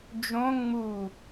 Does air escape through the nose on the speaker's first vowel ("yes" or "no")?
yes